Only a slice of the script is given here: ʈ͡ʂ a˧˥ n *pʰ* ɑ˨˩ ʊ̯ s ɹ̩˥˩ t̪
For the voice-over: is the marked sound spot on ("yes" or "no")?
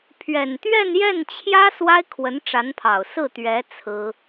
yes